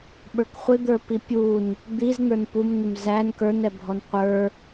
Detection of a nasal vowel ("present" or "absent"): absent